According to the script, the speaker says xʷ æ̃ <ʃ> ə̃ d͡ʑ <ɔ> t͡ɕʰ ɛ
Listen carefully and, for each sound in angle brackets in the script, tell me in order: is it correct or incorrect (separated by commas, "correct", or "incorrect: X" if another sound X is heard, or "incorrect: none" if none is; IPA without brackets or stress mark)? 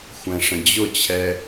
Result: incorrect: ʂ, incorrect: ʊ